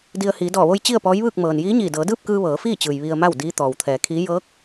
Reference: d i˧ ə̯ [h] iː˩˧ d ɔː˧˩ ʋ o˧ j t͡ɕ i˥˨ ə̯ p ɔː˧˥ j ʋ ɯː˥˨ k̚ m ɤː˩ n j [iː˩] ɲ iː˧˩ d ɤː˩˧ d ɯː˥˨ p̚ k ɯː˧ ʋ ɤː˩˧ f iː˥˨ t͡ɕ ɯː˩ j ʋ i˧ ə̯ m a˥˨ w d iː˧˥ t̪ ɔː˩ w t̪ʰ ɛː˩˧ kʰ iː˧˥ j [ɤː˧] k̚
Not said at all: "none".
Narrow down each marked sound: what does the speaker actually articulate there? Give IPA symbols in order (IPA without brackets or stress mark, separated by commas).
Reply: h, iː˧˥, ɤː˧˥